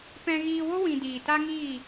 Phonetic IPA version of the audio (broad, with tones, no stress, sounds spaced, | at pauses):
p ɛ̃˧ ɣ iː˧ w o˦ w ĩ˧ d iː˨ t a˦ ŋ iː˦˨